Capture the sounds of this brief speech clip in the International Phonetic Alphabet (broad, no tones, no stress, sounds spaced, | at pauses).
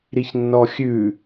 ɾ i ç nː ɔ xʲ ʉ